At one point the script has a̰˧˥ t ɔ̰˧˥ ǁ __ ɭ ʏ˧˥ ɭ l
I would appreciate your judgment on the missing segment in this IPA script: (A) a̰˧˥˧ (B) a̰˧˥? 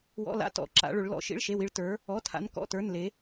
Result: B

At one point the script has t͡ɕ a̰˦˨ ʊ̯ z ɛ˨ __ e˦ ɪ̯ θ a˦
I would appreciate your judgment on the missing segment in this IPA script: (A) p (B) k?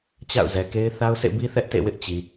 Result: B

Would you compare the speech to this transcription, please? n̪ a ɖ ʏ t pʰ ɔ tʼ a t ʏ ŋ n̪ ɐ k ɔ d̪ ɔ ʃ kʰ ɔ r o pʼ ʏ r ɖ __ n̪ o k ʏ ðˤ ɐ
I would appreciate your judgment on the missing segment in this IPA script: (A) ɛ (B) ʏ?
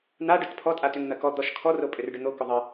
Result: B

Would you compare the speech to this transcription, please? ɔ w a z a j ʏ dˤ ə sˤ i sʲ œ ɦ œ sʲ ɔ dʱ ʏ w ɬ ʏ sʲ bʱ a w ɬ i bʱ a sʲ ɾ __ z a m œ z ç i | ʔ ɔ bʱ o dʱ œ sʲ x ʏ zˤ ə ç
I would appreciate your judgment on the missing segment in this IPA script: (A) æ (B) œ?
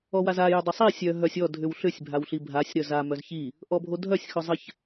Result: B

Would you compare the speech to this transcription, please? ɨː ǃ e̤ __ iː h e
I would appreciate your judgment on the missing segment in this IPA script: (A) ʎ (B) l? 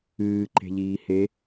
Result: A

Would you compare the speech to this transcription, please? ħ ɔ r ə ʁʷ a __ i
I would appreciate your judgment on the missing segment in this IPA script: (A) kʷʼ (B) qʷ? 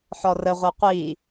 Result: B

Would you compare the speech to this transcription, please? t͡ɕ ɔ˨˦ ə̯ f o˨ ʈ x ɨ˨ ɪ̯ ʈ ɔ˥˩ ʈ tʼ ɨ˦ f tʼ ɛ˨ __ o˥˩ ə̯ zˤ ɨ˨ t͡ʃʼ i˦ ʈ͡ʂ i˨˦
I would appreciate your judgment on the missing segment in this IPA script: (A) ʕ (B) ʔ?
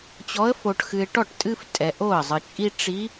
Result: B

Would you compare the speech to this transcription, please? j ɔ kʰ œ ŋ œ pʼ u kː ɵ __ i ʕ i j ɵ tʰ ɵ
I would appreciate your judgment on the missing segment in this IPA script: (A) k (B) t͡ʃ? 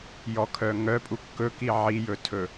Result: A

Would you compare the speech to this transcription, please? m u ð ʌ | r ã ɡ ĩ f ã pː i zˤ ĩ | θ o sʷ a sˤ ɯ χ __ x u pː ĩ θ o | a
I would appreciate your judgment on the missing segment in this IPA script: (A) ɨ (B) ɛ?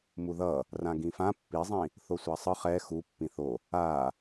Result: B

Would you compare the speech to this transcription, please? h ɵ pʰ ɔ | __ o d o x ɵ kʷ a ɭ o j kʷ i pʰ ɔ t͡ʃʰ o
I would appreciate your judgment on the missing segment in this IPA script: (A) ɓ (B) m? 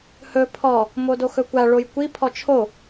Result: B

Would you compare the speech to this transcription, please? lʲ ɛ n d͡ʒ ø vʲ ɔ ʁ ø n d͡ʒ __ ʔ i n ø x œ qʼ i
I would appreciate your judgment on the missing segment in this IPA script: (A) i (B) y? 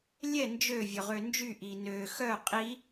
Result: B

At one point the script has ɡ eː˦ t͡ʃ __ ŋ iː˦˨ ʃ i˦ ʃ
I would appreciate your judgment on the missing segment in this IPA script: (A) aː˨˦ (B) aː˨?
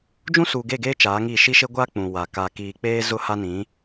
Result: A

